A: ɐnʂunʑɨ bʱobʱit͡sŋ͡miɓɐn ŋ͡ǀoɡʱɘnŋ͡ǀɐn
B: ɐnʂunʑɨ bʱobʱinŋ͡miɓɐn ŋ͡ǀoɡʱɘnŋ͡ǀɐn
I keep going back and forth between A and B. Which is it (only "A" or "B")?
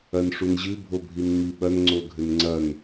B